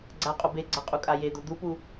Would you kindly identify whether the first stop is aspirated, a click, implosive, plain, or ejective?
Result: click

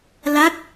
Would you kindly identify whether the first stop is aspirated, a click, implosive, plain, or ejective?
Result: plain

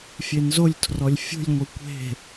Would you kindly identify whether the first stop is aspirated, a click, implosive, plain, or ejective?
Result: aspirated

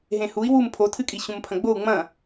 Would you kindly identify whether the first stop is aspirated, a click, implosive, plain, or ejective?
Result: aspirated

